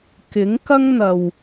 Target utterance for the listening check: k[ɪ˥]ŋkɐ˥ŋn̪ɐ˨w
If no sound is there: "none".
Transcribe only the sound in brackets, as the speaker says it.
ɪ˨˥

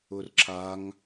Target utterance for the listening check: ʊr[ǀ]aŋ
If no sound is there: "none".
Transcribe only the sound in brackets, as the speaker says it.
ǁ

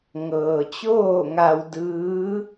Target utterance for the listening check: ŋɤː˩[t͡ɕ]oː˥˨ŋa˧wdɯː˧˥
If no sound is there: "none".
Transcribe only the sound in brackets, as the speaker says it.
t͡ɕ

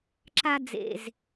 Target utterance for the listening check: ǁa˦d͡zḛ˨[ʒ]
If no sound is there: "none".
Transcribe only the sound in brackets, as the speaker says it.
z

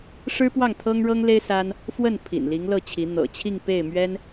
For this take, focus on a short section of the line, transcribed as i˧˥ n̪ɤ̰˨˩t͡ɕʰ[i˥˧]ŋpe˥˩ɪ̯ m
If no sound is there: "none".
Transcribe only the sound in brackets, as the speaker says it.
i˥˧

